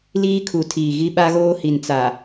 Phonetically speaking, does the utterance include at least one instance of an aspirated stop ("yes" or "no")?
yes